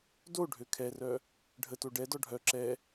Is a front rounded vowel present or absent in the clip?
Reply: present